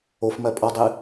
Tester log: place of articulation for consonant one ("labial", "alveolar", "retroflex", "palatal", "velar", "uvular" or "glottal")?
labial